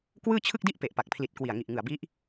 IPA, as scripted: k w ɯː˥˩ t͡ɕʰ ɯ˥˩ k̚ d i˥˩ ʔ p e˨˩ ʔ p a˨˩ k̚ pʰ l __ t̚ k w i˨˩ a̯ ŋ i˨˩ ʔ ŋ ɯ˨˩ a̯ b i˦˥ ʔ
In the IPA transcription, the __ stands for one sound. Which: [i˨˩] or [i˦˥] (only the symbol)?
i˨˩